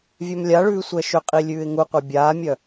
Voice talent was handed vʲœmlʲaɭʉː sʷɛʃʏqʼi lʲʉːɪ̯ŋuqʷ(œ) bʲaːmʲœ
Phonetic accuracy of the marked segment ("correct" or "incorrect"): correct